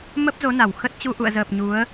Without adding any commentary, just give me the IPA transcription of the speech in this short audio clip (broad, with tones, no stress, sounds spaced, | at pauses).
m ə˦˥ p̚ z o˨˦ n a˨˩ w x ə˦˥ t̚ t͡ɕ u˧ ʔ ṵ˧˨ ə̯ z əː˨˩ p̚ ɲ u˨˦ ə̯